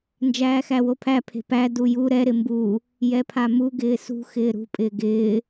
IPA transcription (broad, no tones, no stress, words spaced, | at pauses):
nd͡ʒæːxæwopʰæ pʰe̤pæ duju ɾɛ ɾɪmbu | jɛpʰamu ɡɪːsṳ xɪːɾṳ pʼɪːɡɪː